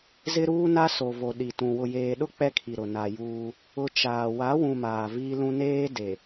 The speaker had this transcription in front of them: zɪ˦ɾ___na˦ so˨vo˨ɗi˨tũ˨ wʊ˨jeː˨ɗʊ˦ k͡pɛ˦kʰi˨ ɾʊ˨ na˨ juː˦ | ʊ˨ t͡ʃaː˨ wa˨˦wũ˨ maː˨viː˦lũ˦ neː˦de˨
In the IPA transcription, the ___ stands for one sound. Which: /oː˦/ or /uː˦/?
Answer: uː˦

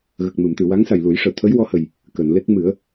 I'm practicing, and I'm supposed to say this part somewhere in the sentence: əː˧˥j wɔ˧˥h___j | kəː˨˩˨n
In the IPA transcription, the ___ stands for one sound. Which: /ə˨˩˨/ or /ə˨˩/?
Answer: ə˨˩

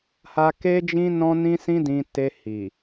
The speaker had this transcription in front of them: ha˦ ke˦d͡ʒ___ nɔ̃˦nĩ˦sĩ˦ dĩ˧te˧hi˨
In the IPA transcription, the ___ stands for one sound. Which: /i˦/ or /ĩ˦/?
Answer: ĩ˦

